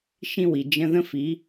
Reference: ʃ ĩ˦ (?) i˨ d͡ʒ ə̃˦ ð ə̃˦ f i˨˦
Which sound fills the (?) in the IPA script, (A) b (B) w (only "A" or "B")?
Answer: B